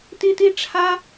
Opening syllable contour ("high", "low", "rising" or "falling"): high